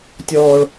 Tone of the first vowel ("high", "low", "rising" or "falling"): high